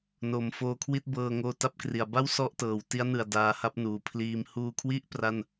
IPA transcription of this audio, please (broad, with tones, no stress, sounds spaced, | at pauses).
n o˩˦ m f oː˧ kʰ w i˥˩ t̚ b ɤː˧ ŋ oː˧ t a˥˩ p̚ k r i˩˦ a̯ b a˥˩ w s ɔ˥˩ ʔ t ɤː˩˦ w t i˦˥ a̯ n ɯ˨˩ a̯ d aː˧ h a˥˩ p̚ n uː˩˦ pʰ l iː˧ m h uː˧ kʰ w i˥˩ ʔ p r a˥˩ n